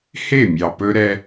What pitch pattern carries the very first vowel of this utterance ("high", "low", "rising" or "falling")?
falling